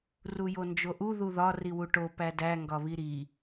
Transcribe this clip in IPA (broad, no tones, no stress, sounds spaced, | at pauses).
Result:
r u j o n d͡ʒ o ʔ u ð u ð ɒ r i w u ʈ o p æ d æ ŋ ɡ ɒ β i ɾ i